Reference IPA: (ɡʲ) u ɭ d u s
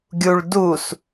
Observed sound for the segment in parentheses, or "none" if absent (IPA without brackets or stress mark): ɡʲ